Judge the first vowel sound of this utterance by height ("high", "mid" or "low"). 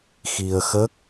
high